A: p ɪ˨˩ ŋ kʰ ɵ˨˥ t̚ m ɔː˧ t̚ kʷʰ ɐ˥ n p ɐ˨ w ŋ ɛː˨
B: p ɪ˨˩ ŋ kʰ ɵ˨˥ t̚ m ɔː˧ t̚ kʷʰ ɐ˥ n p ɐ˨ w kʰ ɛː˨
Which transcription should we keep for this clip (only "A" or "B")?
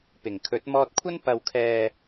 B